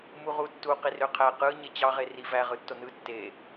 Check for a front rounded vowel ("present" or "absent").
present